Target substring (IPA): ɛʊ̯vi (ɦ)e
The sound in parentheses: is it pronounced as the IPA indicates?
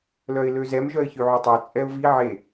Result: no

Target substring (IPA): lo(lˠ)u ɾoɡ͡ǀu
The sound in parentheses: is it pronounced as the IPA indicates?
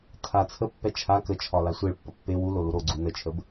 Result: no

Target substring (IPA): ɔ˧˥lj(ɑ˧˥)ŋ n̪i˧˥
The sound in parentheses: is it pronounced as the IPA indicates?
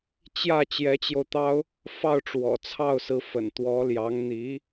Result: yes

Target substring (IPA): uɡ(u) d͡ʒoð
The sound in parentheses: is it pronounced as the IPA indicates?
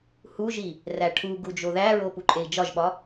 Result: yes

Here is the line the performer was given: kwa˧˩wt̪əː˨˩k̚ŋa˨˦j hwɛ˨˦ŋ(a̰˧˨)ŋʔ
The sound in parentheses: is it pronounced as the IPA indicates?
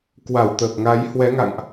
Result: yes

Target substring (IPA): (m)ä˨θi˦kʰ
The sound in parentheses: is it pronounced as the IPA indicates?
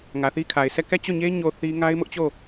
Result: no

